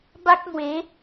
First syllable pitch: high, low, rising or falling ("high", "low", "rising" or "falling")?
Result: high